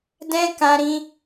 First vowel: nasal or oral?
nasal